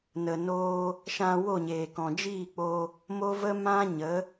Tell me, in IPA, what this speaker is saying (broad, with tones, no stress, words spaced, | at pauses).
nə˨ noː˧ | ʃã˧wo˦˨ɲeː˨ kɔ̃˨d͡ʒiː˦˨k͡po˧ | mo˦və˦ mã˦ɲə˨˦